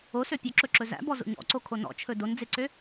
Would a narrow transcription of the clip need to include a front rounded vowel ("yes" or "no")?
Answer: yes